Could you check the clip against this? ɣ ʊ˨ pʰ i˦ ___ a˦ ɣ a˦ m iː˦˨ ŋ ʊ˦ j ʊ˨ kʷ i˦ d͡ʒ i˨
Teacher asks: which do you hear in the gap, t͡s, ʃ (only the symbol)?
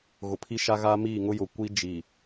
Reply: ʃ